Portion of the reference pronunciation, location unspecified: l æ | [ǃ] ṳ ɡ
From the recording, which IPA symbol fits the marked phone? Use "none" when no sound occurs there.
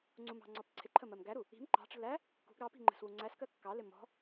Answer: k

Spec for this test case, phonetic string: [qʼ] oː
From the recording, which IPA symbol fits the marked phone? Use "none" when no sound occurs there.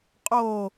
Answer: qʼ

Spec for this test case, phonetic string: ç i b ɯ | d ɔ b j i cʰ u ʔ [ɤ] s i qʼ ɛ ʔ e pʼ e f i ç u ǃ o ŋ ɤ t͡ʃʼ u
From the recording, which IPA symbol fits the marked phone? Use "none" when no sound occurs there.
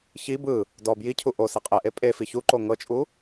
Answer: o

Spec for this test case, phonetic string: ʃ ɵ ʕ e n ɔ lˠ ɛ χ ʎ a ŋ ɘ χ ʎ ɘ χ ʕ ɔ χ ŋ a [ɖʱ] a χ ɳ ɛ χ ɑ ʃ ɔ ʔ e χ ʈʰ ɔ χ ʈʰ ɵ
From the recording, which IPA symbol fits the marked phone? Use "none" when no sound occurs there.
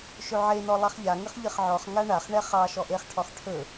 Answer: ɳ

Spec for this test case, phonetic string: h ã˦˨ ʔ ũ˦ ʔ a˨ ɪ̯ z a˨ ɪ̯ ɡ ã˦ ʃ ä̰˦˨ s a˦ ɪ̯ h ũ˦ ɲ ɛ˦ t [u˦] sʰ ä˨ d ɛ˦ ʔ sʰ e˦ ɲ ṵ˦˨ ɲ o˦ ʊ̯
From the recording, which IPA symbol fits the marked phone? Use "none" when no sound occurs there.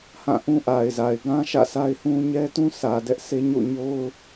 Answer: ũ˦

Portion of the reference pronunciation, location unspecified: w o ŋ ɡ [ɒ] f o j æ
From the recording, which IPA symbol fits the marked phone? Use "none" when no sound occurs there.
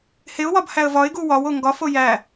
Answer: ɒ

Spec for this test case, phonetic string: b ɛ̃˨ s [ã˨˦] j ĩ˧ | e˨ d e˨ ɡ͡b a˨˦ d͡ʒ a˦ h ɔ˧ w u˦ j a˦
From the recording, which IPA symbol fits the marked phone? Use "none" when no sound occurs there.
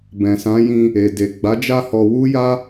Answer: ã˨˦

